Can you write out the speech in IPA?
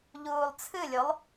ʎuːlˠt͡sʰɨlʲolˠ

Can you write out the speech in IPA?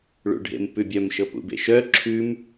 ɭṵɖʱḛmpʉbʲœm ʃɤpṵbḛʃœ ǁʰʉm

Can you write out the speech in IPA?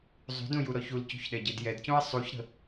zˤṳdũ juɾɔçulcṳç ɗɛɟedjɛdcũɐ̯ sˤuçɾə̤

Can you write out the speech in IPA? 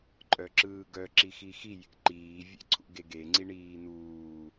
ǃʼœǁɯːɡœ ǁixixi jḛǃiː vʲḛǀʰṵɡeɡe ŋ͡ǀiɳiːnuː

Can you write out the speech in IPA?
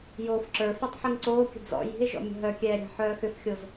joːfǁə˞fitˤ ħiŋǀoːkʲə̤ d͡zɔ̰ ji̤e̯ʒɔ̰ mʲə̤ɦœkʲɛː ɾʲa̤ħœːxʏfxʲoz

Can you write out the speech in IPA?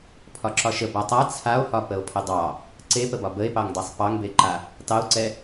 pʰɒǁɒʃə batˤa t͡sʰao̯hɒ pəo̯pʰədˤɑ | ǀepəbɒ bəe̯pɑŋdˤesˤ pɑŋbeǃa | tɑo̯ǀɛ

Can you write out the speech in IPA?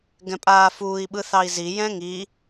ɡɛ̃pʼaːfuːi̯ ɓɯθɑi̯zi jɛ̃ŋi

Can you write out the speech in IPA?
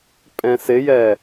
pʼɛ̃sɪjɛ

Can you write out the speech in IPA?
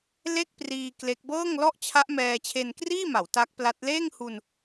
le˥˩k̚priː˧ kle˦˥k̚ bɤː˥˩ŋlɔ˥˩ʔt͡ɕʰa˦˥ʔ mɛː˧t͡ɕʰe˧nkriː˥˩ma˩˦w ta˦˥k̚pla˦˥t̚ leː˥˩ŋhu˧n

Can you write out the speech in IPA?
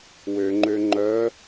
wøŋ͡ǃø ŋ͡ǃœ

